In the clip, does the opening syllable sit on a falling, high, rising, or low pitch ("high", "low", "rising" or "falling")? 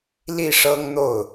falling